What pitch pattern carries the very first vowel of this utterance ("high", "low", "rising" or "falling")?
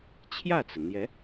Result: falling